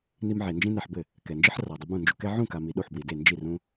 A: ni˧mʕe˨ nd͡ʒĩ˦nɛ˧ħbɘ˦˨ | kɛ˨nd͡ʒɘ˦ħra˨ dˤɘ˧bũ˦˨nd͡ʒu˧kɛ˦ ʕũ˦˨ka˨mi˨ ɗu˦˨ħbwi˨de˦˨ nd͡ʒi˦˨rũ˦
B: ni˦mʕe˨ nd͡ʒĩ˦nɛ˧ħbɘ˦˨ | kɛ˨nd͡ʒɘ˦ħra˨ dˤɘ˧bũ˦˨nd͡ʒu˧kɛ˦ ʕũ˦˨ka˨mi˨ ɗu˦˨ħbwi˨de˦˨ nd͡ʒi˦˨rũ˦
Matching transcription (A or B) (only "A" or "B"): A